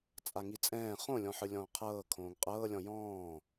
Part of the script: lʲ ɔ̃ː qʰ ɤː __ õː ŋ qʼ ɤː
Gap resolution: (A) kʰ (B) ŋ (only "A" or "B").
A